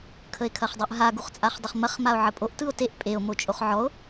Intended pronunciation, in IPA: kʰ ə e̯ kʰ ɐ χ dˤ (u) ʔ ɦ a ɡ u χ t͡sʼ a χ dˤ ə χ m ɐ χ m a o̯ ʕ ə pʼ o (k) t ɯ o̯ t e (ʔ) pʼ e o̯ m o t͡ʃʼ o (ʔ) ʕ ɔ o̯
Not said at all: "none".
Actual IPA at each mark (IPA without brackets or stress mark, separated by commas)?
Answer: ɯ, ʔ, ʔ, χ